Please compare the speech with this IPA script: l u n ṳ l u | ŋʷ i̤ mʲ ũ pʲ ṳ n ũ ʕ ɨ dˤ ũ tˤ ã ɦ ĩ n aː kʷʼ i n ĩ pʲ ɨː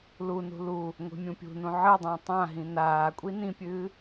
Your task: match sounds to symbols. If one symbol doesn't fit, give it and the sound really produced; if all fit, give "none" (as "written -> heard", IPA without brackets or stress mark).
none